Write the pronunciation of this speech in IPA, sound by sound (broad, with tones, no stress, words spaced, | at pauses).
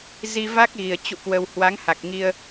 zi˧va˦˥k̚ɣi˨˩ə̯ t͡ɕṵ˧˨kwə˨˩w hwa˨˦ŋha˨˩k̚ŋi˧ə̯